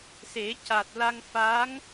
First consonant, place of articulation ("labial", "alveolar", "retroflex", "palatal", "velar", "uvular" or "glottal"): alveolar